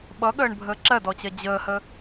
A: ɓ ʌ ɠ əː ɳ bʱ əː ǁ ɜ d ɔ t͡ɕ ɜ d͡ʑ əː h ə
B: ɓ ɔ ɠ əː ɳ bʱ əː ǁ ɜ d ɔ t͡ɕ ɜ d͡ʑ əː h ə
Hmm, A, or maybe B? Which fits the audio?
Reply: A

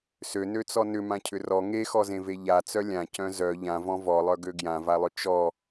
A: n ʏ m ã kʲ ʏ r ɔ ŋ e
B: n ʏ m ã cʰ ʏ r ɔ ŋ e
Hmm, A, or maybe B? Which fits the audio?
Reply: B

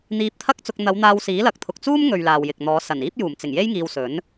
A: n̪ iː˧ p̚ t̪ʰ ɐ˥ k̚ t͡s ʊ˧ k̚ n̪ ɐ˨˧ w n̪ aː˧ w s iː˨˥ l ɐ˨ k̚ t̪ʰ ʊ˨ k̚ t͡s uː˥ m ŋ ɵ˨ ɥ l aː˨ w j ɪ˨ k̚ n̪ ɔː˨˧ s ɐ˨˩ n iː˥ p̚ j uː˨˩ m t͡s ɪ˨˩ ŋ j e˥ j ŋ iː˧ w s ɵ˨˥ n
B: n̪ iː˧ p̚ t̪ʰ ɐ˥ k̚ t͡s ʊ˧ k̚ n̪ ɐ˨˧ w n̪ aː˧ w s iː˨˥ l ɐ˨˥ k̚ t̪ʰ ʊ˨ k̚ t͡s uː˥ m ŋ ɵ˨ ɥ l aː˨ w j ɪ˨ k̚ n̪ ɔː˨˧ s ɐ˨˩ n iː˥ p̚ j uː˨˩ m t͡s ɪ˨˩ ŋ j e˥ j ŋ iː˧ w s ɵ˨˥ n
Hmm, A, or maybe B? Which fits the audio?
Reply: A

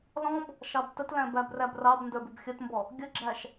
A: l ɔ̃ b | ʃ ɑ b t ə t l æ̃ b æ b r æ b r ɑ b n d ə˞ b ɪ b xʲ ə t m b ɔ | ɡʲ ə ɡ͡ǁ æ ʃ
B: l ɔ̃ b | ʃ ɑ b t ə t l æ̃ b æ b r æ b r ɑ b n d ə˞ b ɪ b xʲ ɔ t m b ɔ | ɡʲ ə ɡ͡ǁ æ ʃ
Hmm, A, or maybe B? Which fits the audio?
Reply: A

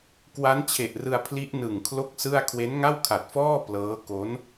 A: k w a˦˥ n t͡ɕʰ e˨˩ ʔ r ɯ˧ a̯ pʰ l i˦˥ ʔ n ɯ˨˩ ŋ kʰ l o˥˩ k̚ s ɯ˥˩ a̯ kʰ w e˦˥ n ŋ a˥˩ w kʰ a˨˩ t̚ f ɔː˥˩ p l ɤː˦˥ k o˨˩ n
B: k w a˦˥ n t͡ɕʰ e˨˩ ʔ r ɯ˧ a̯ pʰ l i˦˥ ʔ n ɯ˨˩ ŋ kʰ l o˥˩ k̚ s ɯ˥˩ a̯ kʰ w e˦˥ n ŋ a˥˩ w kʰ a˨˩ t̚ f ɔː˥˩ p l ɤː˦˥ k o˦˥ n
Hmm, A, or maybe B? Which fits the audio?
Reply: B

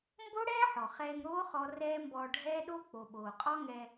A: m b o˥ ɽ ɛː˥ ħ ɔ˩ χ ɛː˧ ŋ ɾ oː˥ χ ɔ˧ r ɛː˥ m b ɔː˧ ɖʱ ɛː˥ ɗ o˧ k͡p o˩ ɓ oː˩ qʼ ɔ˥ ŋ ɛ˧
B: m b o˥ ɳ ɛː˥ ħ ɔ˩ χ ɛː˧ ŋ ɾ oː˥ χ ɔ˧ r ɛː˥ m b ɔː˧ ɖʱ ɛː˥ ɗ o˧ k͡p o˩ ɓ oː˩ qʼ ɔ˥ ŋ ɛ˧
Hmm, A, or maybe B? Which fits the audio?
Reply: A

